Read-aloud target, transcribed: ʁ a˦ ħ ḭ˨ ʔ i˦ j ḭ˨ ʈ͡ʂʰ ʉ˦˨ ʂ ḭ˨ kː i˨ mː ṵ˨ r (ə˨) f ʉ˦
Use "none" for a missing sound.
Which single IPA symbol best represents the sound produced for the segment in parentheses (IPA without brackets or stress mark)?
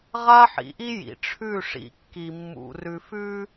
ʉ˨